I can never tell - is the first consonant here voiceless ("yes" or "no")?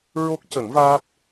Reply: no